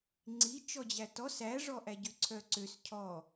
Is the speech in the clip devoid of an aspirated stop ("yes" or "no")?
no